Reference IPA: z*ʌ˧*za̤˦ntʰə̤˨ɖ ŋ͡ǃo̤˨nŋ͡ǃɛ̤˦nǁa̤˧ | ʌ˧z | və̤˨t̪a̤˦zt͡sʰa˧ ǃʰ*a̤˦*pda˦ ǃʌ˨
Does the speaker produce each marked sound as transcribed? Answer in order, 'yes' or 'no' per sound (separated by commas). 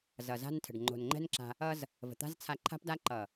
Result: no, yes